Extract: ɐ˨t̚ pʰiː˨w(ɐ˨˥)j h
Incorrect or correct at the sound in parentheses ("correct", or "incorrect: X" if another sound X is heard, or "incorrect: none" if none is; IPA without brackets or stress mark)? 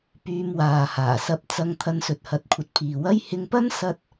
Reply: incorrect: ɐ˥